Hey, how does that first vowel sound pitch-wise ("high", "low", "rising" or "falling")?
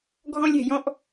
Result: high